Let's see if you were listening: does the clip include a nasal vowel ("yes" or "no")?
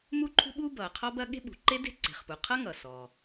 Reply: no